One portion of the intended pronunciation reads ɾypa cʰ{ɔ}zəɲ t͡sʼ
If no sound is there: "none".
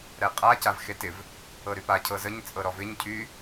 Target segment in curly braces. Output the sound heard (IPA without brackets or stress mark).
ɤ